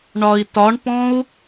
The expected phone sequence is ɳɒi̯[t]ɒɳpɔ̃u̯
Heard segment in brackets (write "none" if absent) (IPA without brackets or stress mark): t